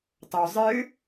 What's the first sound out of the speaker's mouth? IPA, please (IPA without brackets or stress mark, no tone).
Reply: tˤ